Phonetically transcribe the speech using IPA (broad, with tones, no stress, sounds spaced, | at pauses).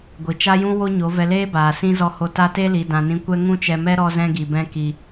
ɡʷ i˨ t͡ʃ a˦ j ũ˦ w o˦ ɲ o˨˦ v ɛ˧ l eː˦ b aː˨ s ĩ˦ z ɔ˧ h o˧ t a˧ t e˧ l i˨ d ã˨ n ĩ˧ kʷ ɛ˦ ŋ ũ˦ t͡ʃ ɛ˧ m ɛ˦ ɾ ɔ˦ z ɛ̃˦ ɡ i˧ b ɛ̃˦ k i˨